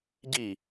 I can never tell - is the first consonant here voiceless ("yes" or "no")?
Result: no